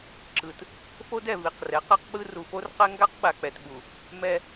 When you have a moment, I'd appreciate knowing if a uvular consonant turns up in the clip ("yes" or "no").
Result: yes